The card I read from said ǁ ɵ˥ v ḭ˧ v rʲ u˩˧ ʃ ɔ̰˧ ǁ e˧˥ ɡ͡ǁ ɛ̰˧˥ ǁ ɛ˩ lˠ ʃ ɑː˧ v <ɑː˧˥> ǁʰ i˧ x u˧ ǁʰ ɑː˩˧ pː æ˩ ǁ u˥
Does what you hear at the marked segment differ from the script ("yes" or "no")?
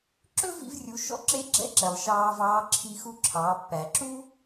no